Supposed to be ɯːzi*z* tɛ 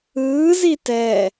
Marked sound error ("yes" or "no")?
yes